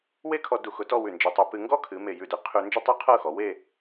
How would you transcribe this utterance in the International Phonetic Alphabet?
we˥˧kʰɔ˧ du˧˩xʊ˧tɔ˥˧ wʉ˧˩nd͡ʒe˧tˤʉ˧ pɨ˧ ŋɡɔ˥kʰɨ˩˧ me˧˩jʉ˧˩de˧˩ qʰʉ˧ nd͡ʒɤ˥˧tˤu˥˧qʰɤ˥˧ xɔ˩˧we˥˧

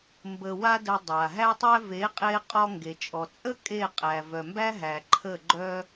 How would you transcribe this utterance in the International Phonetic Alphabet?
mbə˧wa˦də˧ dˤa˨ ɦæ˧tˤæ˧ ve˨˦qʼe˧ qʼɔ˧ŋɡe˨t͡ʃʼɔ˨t͡sʼə˦ kʼe˦˨qʼæ˨ vœ˨mbæ˦ɦæ˨ ǃʰə˦˨ɡ͡ǃœ˦

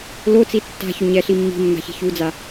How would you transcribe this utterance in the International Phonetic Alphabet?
lot͡si tːa̤çʊ ɲɛɬi mːi̤mːa̤ çi̤çud͡za

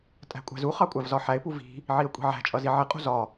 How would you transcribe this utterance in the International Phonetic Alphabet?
tʼæ̤kʷʼæ̤zuχɑ kʷʼævzɒħæɪ̯pu vi̤ | ʕiə̯kʷʼi̤ʕæ̤t͡ʃʼʌ ziʕɪqʼṳ zɒ

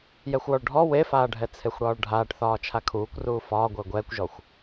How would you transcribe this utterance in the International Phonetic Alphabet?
jɛxʷwɔɭɖʱɔ wefaːɖʱɛ t͡sʰexʷɽɒːɭɖʱaːʈθɒː t͡ʃʰakʰuːkʷruː fɒː ɡʷəːɡʷɛːkʷʒɔxʷ

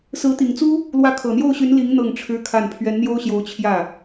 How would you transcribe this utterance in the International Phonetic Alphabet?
sɹ̩˧˥ t̪i˨˩ŋt͡su˥ | lwä˧˥kʰɤ˨˩n̪jo˥˩ʊ̯ɕy˧˥n li˧˥ŋ n̪ɤ˥˩ŋʈ͡ʂʰɻ̩˥kʰa˥˩n pʰɥɛ˧˥nn̪jo˥ʊ̯ɕjo˧˥ʊ̯ t͡ɕʰjä˥˩

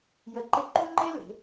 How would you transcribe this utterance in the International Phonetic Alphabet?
jə˧ǃɪ˥˧ ǃũ˥ŋ͡ǃe˥le̤˩˧

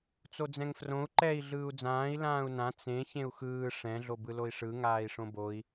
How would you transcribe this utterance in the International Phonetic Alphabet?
t͡sod͡zɛ̃ŋfrõu̯ ǃɛi̯ ɮɯːu̯d͡zãːi̯ lãːu̯nã t͡sẽ çẽu̯xɯː ʂɛ̃ ɮobɯloi̯ʂɯ ŋaːi̯ʂõboi̯

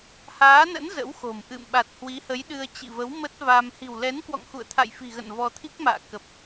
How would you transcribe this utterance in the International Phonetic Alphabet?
haː˨˦nə̰˧˥n zə̰˧˥wxo̤˨˩mʔɨ̰˧˨m ɓa˨˩t̚hwi˨˦hə˨˦j ɗɨ˧ə̯ t͡ɕḭ˧˨və˨˦w mə˦˥t̚va˧m hi̤˨˩wlɛ˨˦nkwɔ̰˧˨ŋ xṵ˧˨ə̯t̪ʰa̰˧˨jfi̤˨˩ɣə̰˧˨n vɔ˧t̪ʰi˦˥k̚ma̰ː˧˨ kə˨˩p̚

